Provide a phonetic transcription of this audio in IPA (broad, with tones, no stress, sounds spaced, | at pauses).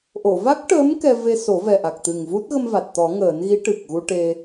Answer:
ʔ o˨˩˨ v a˦˥ k̚ ʈ əː˧˥ m k ɛ˧ v e˧ s o˨˩˦ v ɛ˨˩ ʔ a˨˩ k̚ t̪ ɨ˨˩ ŋ v u˦˥ t̚ ɣ ə˧ m v a˨˩ t̚ t̪ ɔ˨˩˦ ŋ əː˨˩˦ n ɣ i˧˥ ʈ ɨ˨˩ k̚ ɣ u˧ ʈ e˧